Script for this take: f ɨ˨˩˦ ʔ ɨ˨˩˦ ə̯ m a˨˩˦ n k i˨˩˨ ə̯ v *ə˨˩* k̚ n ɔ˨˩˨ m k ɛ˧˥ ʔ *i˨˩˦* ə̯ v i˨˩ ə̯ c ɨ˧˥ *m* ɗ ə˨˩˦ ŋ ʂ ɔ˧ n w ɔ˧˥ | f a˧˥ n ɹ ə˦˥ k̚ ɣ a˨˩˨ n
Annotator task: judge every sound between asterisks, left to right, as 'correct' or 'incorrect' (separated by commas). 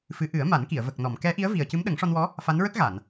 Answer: correct, incorrect, correct